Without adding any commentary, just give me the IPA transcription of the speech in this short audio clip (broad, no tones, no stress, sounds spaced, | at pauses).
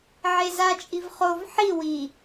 ʕ e z a t͡ʃʼ i v χ o v ħ i w i